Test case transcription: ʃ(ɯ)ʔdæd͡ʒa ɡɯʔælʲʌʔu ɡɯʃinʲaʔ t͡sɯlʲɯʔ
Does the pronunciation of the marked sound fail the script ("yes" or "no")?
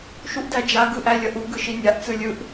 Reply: yes